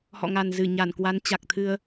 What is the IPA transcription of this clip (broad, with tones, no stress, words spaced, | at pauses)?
hɔ̰˧˨ŋa˨˩nzɨ˧˩ ɲa˧˩nkwa˨˦n t͡ɕa˨˩k̚t̪ʰɨ˧ə̯